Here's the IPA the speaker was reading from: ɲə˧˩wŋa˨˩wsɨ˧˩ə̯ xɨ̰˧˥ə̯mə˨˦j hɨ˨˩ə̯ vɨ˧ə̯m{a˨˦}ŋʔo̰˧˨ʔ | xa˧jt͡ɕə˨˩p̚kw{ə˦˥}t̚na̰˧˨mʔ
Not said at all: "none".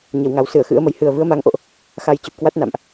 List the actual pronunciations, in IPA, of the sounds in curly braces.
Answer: a˨˦, a˦˥

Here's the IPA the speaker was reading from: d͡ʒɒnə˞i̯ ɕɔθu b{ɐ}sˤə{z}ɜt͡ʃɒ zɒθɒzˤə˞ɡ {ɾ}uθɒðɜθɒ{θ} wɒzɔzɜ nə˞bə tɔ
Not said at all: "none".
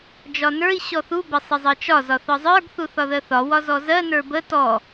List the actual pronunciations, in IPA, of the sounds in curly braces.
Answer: ɐ, zˤ, θ, none

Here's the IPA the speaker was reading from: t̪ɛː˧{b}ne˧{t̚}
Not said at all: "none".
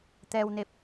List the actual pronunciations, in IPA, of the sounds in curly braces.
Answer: w, p̚

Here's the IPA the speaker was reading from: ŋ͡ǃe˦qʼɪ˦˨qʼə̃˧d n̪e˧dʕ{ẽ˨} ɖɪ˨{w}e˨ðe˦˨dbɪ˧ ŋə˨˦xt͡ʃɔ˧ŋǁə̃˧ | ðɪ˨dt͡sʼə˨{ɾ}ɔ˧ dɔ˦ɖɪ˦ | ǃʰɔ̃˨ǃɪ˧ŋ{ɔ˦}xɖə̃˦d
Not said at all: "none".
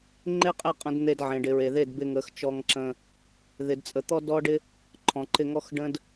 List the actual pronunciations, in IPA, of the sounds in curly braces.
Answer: ẽ˨, ɹ, t̪, ɔ˦

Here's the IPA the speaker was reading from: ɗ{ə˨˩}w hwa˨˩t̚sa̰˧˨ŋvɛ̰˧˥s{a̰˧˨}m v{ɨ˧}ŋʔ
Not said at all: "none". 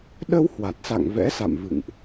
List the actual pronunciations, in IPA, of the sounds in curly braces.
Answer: ə˧, a̰˧˨, ɨ̰˧˨

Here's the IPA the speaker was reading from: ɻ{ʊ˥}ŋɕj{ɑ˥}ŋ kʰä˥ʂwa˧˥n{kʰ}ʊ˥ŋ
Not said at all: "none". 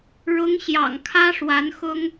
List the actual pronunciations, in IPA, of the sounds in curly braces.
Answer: ʊ˧˥, ɑ̰˨˩, x

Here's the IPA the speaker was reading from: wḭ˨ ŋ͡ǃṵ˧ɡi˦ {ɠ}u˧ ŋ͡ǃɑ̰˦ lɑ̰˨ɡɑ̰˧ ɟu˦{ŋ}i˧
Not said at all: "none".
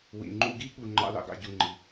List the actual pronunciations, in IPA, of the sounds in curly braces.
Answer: ɠ, ŋ͡ǃ

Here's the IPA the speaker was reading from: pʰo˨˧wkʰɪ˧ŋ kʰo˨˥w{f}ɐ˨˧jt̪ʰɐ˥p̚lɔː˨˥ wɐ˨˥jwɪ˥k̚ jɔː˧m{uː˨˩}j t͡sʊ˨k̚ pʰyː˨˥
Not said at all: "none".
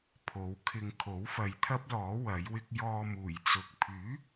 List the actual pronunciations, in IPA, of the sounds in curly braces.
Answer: f, uː˨˩

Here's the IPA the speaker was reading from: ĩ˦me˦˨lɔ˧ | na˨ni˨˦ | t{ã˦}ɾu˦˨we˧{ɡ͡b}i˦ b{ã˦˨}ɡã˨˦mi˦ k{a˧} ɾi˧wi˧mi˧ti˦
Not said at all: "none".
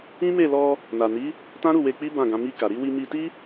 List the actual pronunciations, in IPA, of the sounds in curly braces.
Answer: ã˦, k͡p, ã˦˨, a˧

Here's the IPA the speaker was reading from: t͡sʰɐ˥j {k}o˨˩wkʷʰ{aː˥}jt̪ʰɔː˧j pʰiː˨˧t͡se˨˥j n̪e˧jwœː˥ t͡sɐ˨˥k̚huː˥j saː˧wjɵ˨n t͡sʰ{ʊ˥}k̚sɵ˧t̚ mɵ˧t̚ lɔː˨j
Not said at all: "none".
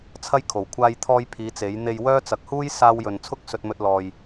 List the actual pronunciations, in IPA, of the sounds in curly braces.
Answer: kʰ, aː˧, ʊ˥

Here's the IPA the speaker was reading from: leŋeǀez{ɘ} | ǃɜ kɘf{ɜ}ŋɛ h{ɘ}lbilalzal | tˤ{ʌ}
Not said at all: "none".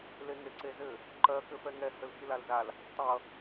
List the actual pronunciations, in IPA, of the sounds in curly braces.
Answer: ɘ, ɛ, ɘ, ʌ

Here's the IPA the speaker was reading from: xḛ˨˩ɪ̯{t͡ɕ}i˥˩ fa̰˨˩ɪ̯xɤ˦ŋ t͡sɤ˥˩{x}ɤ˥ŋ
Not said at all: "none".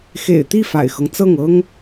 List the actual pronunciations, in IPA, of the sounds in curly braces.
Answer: t̪, ŋ

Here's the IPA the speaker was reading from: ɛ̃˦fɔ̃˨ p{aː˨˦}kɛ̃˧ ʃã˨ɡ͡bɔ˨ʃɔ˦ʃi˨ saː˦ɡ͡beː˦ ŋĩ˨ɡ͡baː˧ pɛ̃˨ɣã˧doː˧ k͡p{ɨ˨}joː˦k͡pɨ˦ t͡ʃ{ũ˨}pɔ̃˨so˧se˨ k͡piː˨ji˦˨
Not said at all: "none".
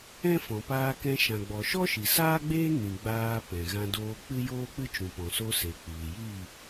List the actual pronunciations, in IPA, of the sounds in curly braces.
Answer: aː˧, ɨ˦, ũ˨

